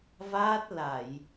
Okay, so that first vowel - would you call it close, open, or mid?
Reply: open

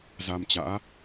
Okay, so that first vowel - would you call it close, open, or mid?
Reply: open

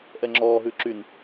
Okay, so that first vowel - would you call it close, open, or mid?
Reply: mid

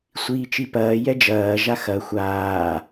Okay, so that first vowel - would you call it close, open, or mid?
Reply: close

